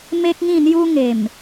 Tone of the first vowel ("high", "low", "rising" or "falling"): high